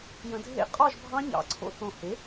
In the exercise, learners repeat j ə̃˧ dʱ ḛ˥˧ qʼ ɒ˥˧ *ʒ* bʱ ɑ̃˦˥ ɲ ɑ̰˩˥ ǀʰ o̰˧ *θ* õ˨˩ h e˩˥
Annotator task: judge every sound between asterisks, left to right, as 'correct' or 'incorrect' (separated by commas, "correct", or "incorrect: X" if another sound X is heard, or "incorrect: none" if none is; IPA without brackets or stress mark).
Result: correct, correct